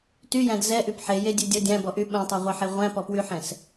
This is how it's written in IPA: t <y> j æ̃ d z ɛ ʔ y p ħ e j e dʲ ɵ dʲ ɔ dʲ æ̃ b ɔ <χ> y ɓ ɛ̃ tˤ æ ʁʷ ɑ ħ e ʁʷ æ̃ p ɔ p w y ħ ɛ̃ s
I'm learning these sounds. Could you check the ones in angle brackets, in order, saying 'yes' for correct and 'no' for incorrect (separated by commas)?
yes, no